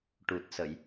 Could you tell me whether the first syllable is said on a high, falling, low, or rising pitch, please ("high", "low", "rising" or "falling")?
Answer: low